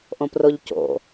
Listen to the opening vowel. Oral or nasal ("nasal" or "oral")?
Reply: nasal